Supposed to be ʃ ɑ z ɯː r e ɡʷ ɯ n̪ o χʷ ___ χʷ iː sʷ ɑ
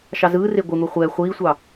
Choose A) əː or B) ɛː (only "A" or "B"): B